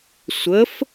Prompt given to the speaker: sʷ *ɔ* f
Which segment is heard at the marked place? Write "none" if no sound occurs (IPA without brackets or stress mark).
ə